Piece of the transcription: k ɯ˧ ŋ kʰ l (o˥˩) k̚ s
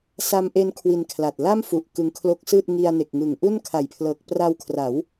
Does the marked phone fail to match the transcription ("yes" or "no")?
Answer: yes